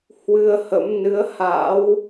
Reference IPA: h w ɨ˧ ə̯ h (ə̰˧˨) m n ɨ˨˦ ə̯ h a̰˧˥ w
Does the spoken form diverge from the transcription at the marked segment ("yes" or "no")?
yes